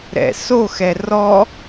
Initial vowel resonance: oral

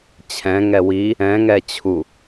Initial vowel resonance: nasal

